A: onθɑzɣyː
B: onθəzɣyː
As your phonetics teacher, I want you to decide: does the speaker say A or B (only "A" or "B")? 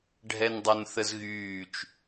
B